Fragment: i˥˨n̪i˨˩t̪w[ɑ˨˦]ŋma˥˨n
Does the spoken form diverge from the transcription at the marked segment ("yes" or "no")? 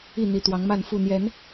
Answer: no